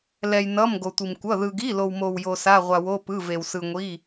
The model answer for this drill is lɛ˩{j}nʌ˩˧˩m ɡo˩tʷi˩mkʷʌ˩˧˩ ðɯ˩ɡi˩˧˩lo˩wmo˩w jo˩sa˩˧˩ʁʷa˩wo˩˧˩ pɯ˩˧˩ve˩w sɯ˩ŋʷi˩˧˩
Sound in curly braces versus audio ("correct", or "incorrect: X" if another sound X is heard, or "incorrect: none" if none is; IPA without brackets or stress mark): correct